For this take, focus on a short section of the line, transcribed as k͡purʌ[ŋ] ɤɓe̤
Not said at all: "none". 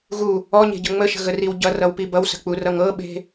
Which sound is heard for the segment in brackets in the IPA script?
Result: ŋ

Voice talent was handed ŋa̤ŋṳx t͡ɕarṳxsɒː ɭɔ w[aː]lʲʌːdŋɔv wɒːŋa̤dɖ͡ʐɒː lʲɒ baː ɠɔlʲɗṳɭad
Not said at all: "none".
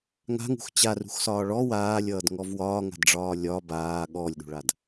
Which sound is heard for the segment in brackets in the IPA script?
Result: aː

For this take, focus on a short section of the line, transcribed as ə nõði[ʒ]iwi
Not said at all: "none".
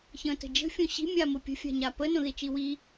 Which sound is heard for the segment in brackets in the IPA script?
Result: t͡ʃ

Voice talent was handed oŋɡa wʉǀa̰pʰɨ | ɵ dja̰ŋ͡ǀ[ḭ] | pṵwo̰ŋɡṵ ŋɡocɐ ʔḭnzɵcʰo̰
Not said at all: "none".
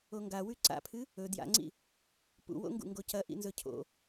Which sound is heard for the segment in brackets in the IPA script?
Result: ḭ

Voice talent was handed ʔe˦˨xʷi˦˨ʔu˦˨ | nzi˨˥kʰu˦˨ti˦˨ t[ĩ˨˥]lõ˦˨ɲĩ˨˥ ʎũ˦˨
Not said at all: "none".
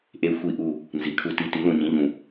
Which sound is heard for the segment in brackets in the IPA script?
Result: i˨˥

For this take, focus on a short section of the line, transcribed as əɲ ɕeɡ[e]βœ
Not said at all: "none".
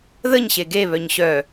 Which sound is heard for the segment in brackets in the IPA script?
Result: e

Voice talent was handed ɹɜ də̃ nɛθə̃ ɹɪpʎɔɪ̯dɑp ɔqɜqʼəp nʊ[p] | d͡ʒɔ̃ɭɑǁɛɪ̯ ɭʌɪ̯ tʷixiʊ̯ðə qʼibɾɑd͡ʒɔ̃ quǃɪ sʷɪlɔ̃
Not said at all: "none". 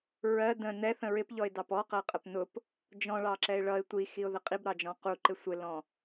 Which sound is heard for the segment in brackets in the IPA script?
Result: p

